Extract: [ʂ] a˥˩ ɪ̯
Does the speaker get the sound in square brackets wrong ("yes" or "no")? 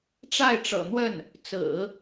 yes